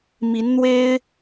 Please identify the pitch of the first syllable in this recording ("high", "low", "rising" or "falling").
rising